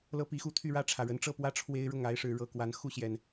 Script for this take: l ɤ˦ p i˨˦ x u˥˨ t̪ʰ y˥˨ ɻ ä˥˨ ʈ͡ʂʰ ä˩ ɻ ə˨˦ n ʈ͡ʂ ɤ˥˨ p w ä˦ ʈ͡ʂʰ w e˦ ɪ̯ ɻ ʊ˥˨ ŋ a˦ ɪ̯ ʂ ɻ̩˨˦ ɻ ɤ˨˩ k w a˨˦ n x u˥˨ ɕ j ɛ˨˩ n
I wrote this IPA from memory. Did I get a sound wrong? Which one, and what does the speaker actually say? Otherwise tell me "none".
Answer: none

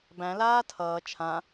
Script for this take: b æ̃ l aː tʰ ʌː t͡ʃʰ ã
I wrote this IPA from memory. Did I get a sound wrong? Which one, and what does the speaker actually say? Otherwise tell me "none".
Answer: none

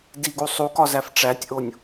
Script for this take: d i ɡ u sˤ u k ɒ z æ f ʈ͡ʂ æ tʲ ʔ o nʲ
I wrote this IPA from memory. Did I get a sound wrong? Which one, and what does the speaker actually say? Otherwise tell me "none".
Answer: none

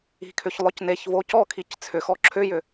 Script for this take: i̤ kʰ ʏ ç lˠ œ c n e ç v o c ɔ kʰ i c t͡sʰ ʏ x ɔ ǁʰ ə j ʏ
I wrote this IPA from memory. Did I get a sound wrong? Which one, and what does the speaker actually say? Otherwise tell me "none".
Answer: ə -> ʏ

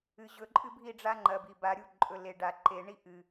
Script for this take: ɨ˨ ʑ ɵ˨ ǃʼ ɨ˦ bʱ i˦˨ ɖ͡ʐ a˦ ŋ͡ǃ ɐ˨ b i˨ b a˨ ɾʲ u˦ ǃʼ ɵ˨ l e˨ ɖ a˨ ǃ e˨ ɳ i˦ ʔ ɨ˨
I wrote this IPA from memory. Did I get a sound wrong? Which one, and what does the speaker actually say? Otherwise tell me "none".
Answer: none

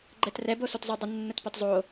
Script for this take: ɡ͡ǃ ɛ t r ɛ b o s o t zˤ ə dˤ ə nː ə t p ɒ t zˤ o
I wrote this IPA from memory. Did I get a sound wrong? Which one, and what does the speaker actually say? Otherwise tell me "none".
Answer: none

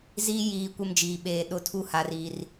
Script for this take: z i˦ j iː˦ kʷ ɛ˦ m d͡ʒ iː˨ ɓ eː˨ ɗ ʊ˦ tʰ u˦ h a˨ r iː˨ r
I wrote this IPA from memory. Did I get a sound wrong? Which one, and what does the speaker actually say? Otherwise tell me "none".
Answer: none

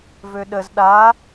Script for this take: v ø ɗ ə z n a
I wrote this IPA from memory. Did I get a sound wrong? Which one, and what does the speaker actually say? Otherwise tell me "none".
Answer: n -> ɗ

